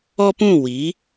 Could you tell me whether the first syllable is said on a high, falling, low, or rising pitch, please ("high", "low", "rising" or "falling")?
high